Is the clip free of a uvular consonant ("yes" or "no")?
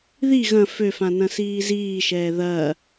yes